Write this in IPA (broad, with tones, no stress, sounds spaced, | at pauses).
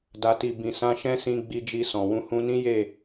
d a˨ t i˨ b ĩ˨ s ã˧ ʃ ɛ̃˦ s ĩ˧ ɡ͡b i˧ d͡ʒ i˧ s ɔ̃˨ w ũ˧ h ũ˧ n ĩ˦ j e˦˨